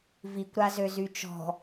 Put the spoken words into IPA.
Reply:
v i kʷ ɾ a z ø z y t͡ʃ ɔ̤

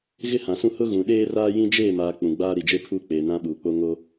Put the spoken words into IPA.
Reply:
ɣ ɪ˦ h ã˨ s ũ˦ h ʊ˦ ɣ ũ˨ ɗ eː˦ r aː˦ j ĩ˦ d͡ʒ eː˦˨ m aː˨ k͡p ũ˨ ɡ͡b aː˦ ɾ i˨ d͡ʒ e˦ pʰ uː˦ k͡p eː˨ n ã˦ ɓ uː˨ k͡p o˦ ŋ o˦

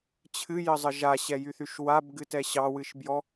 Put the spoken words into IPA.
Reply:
t͡ɕʰ ɨ j ə zˤ ə ʒ a ɕ ɛ j y θ y ʃ w a b ɡ ɨ t ɛ ɕ ɑ w ɨ ʃ b j ɔ

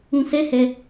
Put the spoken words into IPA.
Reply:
ũ˧ s ɛ˦ h ɛ˧

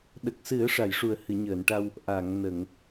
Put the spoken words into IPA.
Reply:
ɗ ə˨˩ k̚ s ɨ˨˩˦ ə̯ ʂ a˨˩˨ j ʂ u˨˩ ə̯ h ɨ˨˩˨ ɲ əː˨˩˨ n ʈ a˧ w | ʔ a˨˩˨ ŋ n ə˨˩˨ ŋ

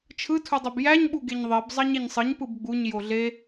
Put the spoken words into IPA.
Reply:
t͡ʃʰ ɯ tʰ u dˤ ø b j æ ɲ ɓ u ɡ e ɲ ðˤ i b zˤ ɑ ɲ e ɲ sˤ ɯ ɲ p ɯ b ɡ͡b u ɲ j o ɮ e

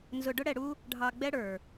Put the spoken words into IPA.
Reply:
n z ʊ˧ ɖ ʊ˦ ɽ ɛ˧ ɽ u˦ | ɖʱ ɑ˧ ɡ͡b ɛ˦ ɽ ə˞˨

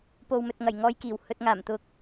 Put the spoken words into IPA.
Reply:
p o˨ w m ɵ˨ t̚ ŋ ɐ˨˩ j ŋ ɔː˧ j k iː˨˩ w h ɵ˨ t̚ ŋ aː˨˩ m t̪ ʊ˨ k̚

